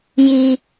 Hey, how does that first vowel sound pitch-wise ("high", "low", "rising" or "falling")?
high